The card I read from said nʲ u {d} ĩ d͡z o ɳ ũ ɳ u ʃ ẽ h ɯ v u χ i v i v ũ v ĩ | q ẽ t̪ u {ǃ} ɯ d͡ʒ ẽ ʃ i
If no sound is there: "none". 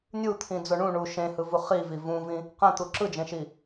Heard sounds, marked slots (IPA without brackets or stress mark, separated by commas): t̪ʰ, ǁ